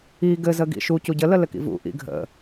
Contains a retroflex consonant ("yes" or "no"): no